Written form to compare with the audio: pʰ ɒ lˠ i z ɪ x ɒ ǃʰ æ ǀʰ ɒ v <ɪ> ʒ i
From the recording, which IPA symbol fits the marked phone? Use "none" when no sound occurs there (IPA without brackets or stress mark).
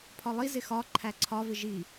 ɪ